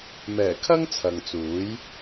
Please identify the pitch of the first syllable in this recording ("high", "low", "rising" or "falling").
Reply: low